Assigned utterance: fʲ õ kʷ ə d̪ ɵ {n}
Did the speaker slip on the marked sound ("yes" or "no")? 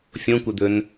no